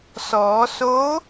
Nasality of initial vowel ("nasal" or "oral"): oral